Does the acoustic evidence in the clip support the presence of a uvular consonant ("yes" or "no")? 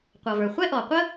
yes